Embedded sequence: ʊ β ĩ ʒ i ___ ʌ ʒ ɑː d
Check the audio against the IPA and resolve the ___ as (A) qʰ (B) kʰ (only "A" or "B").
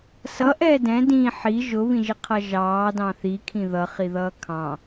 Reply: A